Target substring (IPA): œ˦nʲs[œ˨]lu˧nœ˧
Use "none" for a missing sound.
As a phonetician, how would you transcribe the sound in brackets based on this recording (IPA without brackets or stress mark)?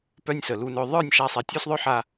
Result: ə˨